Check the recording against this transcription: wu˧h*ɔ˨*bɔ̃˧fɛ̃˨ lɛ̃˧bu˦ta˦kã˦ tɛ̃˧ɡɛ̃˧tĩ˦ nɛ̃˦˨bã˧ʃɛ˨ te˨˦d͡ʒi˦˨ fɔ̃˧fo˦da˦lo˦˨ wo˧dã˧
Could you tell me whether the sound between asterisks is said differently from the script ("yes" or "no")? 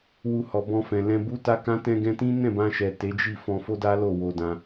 no